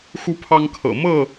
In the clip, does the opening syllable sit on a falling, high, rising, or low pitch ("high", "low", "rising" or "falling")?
high